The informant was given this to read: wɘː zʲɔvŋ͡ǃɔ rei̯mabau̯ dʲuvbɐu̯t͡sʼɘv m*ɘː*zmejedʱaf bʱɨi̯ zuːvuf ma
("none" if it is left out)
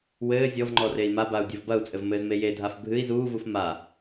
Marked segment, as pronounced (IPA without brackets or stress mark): ɘː